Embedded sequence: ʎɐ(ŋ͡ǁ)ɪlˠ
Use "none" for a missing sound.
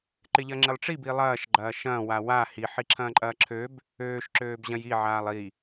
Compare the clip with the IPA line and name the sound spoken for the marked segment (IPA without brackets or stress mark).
ŋ͡ǁ